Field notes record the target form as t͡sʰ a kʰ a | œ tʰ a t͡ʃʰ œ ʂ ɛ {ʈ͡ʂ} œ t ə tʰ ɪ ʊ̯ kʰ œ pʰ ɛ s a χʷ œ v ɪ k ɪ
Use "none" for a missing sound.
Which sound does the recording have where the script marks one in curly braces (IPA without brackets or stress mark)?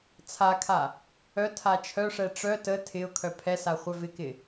ʈ͡ʂ